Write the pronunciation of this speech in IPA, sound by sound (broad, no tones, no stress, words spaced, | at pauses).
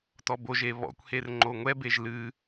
tɔboʒe βɔ̰kʷher ŋ͡ǃoŋʷɛbeʒ lɨ